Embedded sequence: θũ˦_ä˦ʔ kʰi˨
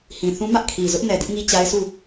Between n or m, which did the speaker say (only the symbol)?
m